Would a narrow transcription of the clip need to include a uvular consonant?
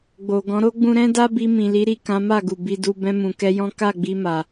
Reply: no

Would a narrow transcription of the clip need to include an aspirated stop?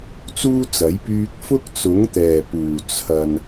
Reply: yes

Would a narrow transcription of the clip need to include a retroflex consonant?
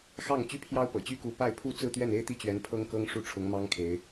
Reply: yes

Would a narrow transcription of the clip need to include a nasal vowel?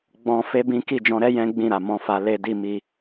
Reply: yes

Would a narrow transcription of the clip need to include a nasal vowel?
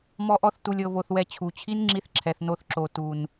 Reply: no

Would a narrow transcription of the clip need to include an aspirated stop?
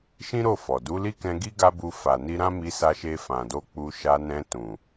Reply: no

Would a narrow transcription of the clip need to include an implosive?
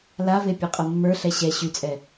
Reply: no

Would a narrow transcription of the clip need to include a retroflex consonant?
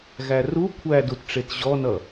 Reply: yes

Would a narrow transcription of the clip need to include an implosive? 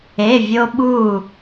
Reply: yes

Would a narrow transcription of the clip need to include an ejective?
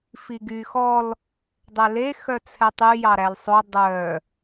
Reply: no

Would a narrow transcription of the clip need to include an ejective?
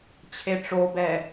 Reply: no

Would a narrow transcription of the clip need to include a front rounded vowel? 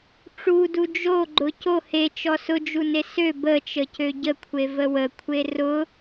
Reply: yes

